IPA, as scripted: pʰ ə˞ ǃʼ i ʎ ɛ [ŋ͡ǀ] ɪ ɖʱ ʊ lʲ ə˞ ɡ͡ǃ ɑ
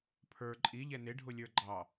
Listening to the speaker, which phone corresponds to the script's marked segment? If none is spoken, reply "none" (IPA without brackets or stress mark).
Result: n